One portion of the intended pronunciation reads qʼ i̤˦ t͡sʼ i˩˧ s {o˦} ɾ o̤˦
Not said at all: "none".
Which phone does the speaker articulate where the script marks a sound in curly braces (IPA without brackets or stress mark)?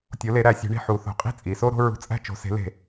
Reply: o˦